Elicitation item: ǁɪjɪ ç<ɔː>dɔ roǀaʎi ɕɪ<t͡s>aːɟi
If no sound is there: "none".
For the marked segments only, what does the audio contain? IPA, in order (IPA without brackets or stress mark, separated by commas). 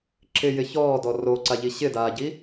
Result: ɔː, d